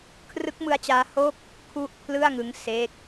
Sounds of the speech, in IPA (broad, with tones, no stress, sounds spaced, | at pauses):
kʰ r ɯ˦˥ k̚ m ɯ˦˥ a̯ t͡ɕ aː˦˥ h o˥˩ k̚ | kʰ u˥˩ ʔ pʰ l ɯ˥˩ a̯ ŋ ɯ˦˥ ŋ s e˦˥ k̚